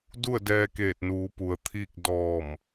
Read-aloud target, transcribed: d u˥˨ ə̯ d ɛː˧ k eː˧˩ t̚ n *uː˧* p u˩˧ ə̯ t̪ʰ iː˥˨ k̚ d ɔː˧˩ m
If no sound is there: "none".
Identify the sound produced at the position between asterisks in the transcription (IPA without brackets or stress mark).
uː˩˧